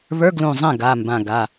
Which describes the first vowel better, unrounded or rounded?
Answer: unrounded